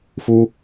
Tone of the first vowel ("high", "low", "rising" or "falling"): high